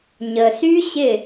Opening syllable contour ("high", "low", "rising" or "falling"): low